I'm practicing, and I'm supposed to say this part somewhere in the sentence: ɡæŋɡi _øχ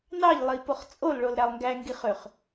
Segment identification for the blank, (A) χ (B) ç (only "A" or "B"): A